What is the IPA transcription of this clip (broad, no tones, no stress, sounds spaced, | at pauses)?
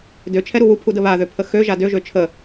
d ø t͡ʃʰ ɛ ɾ u w u pʰ u d ə β a ð ø pʰ ə x ø ʒ a d ø ʒ ø t͡ʃʰ ə